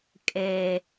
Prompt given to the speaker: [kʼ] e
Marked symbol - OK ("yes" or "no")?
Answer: yes